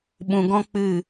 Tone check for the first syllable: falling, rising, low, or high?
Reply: low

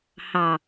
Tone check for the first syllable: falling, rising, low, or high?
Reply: low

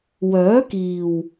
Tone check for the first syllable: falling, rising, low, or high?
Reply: rising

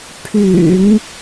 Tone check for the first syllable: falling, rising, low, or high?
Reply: low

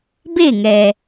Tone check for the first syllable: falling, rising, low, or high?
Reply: falling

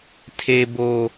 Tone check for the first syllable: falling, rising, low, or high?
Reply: high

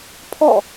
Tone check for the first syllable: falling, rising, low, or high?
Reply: falling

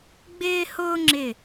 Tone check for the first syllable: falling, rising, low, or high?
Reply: high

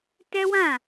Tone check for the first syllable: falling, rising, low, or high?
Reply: high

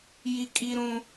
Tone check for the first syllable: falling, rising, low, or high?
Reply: high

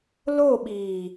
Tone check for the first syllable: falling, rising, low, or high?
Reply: falling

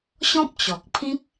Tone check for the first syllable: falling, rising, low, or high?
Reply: high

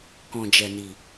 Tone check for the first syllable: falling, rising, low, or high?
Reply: low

